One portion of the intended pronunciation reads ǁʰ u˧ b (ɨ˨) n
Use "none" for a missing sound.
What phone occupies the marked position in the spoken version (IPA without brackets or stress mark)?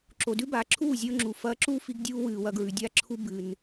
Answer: ɨ˨